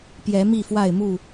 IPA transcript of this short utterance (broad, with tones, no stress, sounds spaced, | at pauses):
p j ɛ˨˦ m i˥˨ f w a˥˨ ɪ̯ m u˥˨